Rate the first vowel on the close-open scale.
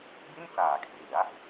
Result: close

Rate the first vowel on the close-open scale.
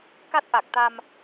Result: open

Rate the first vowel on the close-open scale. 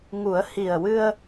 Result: close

